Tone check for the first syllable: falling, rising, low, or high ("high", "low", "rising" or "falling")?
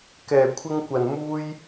low